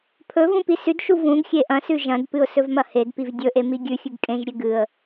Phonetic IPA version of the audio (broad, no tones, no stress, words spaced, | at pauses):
pʰɵ vũpisʉdʃu vũɡxʲe ʔɐ̃sʉ ʒɐ̃dpɨʊ̯ sɵvmɐhedpiv dʲɵʔe miɡʲʉxʲʉɡ kʼẽʒɾʲe ɡɨə̯